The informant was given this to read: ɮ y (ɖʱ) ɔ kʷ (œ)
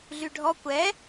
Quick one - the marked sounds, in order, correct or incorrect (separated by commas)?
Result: correct, incorrect